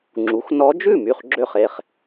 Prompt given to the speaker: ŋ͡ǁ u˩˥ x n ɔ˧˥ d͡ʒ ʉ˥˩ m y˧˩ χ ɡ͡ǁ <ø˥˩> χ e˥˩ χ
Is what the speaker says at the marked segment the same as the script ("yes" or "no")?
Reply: yes